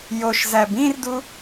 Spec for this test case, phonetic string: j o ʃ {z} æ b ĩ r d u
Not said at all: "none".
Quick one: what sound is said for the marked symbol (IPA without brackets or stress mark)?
z